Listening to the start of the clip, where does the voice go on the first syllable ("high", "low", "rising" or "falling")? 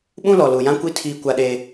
high